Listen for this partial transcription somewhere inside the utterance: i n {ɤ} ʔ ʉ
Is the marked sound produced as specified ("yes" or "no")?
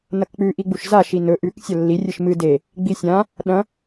no